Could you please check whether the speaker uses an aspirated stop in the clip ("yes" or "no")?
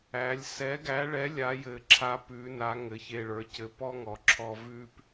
yes